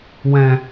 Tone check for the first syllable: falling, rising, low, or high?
low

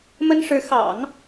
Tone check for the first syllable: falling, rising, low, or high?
high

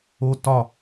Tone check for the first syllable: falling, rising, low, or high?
high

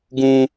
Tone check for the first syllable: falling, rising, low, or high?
high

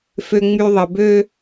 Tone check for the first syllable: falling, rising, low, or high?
high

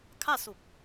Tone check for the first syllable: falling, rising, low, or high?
falling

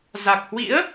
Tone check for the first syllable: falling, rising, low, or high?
low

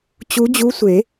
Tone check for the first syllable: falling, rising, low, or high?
rising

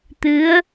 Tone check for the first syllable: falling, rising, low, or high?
rising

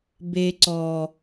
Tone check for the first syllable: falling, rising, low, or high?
low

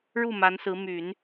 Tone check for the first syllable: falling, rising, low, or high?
falling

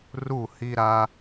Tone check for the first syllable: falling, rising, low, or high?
falling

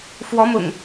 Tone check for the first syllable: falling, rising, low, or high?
rising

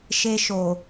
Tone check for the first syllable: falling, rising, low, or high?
high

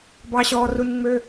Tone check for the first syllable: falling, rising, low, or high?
low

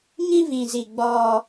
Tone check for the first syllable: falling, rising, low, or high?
high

